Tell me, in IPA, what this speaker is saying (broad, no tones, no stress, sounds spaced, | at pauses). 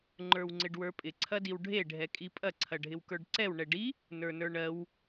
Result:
ŋ͡ǃ ə˞ w ŋ͡ǀ ɪ ɖ w ə˞ pʼ ɪ ǀʰ ɐ d i w ɖʱ e ɖʱ ɛ kʼ i pʼ ɐ ǀʰ ɐ ɖʱ ɪ w k ə˞ ɖ ǀ ɛ w ɳ ɛ ɖ i | n ə˞ n ə˞ ɳ ɜ w